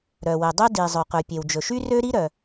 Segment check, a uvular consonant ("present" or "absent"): present